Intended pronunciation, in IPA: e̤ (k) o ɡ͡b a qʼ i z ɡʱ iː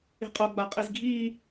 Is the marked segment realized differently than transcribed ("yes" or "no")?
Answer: yes